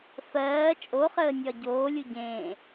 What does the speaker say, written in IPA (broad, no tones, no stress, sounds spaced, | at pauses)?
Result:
f ɜː t͡ʃʼ o χ əː nʲ ɒ ɟ oː lʲ u ɟ ẽː